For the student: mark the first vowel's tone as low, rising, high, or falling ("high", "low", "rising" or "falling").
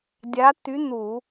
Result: rising